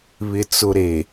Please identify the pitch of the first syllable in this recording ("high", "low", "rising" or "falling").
low